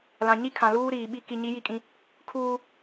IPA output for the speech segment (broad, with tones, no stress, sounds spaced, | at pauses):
l ã˨ ɲ i˦ kʰ ã˨ l uː˦ ɾ iː˨ ɓ i˦ k i˨ ɲ i˨˦ j i˦˨ kʼ ĩ˦ | kʰ uː˦